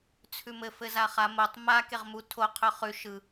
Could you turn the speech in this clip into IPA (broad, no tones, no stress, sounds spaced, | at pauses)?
t͡sʰ ʉ m ɘ f ɘ z a χ a m o tˤ m a k e ʁ m u tʰ o qʰ ɵ χ ʉ ʃ ɯ